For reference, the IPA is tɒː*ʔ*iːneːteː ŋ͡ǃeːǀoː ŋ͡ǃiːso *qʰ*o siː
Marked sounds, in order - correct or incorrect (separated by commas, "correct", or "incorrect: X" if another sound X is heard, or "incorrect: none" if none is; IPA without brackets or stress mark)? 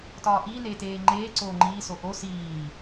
correct, incorrect: ʔ